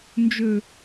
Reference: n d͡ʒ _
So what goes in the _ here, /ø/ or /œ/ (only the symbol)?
ø